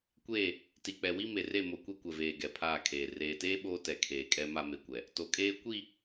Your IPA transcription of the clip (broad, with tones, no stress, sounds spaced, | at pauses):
kʷ eː˦˨ | t i˨ k͡p ɛ˨ w i˦ m e˨ r e˦˨ m o˨ kʷ e˦ kʷ ɛ˨ v eː˨ ɡ ɛ˨ pʰ aː˦˨ kʰ eː˨ r eː˨ t eː˦ ɓ oː˦ t ɛ˨ kʰ eː˨ kʼ ɛ˦ m a˦ m e˨ kʷ ɛ˨ | t o˨ kʼ eː˦ kʷ i˦˨